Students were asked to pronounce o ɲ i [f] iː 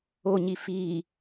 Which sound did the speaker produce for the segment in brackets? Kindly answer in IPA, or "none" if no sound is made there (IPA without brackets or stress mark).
f